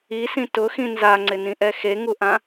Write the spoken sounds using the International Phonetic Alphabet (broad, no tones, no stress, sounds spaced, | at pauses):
i s ĩ t ʊ x ĩ n z a ŋ͡ǀ ɪ n ĩ ʔ ɛ x e ŋ u ʔ ã